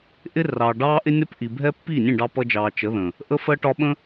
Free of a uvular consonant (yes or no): yes